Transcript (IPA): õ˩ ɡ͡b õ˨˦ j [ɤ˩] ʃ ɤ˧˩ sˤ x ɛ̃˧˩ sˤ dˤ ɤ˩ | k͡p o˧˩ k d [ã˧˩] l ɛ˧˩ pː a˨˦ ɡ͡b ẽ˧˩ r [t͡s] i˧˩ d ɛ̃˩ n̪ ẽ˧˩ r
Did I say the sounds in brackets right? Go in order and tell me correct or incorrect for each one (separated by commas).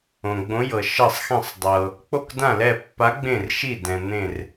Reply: correct, correct, incorrect